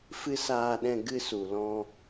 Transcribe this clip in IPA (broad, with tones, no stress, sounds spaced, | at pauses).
f ɨ˦ s aː˧ ɗ ɛ̃˧ ɡ ɨ˧ s u˨ l ɔ̃˧